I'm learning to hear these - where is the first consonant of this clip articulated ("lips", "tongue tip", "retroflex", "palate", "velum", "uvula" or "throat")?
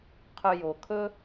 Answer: uvula